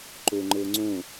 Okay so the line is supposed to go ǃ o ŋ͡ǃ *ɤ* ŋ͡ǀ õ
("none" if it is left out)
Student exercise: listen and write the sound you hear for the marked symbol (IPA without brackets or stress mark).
ɤ